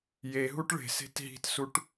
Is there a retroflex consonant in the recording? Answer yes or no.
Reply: yes